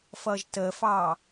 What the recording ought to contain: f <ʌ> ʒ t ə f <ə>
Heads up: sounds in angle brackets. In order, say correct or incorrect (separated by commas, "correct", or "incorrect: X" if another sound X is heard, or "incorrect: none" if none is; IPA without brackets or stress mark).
correct, incorrect: ɑ